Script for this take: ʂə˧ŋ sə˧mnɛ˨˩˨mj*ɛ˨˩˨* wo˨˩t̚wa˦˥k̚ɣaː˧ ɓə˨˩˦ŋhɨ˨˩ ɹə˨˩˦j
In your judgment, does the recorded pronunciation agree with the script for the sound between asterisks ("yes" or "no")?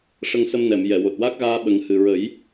yes